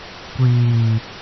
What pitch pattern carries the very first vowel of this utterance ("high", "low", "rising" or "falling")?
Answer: low